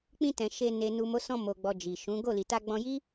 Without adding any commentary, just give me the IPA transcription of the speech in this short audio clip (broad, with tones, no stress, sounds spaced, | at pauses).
k͡p ĩ˧ t ɛ̃˨ ʃ e˧ n e˨ n u˨ m o˨˦ s ɔ̃˧ m o˨ ɡ͡b ɔ˨ d͡ʒ i˨ ʃ ũ˨˦ ɡ o˦˨ l i˨ t a˧ ɡ͡b ɔ̃˧ j i˦